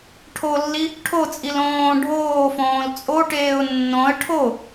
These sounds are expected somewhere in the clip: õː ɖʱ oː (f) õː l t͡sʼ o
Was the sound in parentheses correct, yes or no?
yes